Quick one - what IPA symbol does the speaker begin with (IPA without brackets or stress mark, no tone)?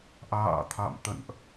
ʔ